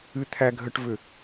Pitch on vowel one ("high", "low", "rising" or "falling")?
high